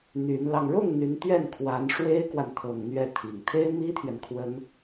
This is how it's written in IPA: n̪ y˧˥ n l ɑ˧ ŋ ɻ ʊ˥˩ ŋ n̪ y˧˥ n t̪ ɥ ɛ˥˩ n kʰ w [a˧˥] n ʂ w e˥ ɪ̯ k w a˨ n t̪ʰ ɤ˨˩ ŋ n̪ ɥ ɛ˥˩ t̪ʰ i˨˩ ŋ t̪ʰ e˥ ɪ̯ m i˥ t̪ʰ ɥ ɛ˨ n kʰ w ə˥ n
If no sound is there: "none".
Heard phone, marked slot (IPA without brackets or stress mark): a˧˥